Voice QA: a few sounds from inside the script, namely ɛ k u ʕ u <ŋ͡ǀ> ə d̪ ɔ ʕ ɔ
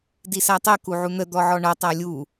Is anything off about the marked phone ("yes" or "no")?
yes